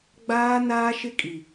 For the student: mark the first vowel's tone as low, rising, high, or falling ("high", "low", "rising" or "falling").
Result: high